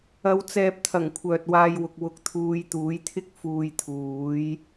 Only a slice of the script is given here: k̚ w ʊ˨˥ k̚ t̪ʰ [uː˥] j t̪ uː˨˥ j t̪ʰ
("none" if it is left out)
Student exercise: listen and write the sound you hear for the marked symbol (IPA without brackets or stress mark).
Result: uː˨˧